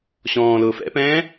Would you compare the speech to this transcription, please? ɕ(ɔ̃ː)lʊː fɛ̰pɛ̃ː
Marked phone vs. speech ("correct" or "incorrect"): correct